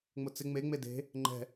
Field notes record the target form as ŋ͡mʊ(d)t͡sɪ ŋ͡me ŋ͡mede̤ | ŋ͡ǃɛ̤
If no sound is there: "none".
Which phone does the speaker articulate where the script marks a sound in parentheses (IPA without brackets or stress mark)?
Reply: none